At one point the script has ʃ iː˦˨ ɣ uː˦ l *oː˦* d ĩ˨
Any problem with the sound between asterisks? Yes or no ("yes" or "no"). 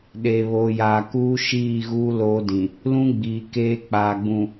no